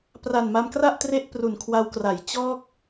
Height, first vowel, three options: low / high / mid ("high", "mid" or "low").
low